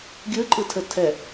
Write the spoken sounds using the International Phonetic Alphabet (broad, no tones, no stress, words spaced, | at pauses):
ɡʲɯǃʼɯtʰə tʰɛ